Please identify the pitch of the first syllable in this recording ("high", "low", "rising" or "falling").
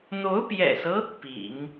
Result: rising